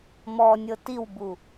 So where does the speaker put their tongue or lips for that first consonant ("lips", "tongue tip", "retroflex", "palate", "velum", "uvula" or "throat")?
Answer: lips